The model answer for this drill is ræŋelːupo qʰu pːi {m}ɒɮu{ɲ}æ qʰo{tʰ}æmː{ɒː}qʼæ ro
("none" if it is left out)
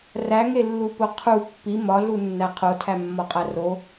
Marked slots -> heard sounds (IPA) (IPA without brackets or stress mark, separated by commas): m, nː, tʰ, ɒ